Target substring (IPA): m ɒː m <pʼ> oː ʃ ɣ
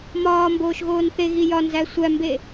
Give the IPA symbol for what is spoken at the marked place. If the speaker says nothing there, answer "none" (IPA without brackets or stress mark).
b